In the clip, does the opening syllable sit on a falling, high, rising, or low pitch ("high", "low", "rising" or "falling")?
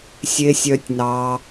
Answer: low